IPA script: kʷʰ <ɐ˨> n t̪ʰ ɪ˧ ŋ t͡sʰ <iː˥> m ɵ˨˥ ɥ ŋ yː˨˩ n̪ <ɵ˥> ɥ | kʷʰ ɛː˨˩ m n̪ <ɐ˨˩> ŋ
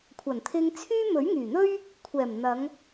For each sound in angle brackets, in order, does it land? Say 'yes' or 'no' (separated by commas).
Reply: no, no, yes, no